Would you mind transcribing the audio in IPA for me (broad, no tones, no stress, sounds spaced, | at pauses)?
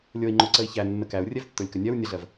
lʲ o i̯ ŋ͡ǃ o ǀ ə i̯ ç æ nː ə k æ u̯ rʲ ɛ v tː o lʲ k ə nʲ ɜ w nʲ ə ɮ ɜ v